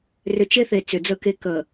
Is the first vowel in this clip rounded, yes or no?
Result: yes